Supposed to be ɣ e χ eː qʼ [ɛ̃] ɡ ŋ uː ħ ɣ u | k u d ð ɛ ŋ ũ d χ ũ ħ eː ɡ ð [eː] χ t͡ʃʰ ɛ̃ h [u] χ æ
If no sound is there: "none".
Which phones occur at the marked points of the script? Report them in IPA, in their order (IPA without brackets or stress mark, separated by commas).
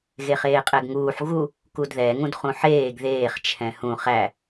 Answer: ɛ, eː, ũ